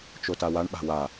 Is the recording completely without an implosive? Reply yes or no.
no